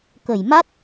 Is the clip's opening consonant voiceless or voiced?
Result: voiceless